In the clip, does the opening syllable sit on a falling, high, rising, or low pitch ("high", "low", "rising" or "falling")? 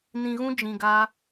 low